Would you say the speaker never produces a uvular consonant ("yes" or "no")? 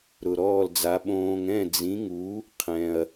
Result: no